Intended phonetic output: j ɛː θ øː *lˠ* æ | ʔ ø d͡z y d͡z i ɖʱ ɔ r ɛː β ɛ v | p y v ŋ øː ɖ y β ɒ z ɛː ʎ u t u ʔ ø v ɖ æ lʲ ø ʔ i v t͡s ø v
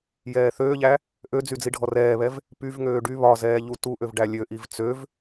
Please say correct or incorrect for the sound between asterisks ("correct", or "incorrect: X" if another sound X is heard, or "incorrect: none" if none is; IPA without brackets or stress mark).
incorrect: ʎ